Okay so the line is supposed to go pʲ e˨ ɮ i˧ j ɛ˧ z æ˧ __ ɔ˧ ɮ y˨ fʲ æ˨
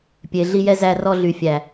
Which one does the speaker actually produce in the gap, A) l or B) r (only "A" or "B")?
B